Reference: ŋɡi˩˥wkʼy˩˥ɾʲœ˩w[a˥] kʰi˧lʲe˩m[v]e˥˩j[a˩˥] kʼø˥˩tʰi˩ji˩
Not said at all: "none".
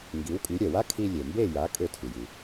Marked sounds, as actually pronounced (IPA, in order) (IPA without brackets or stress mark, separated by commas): a˥, b, a˩˥